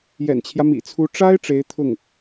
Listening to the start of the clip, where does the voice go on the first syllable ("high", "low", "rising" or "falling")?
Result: low